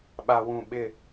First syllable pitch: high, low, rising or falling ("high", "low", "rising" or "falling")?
low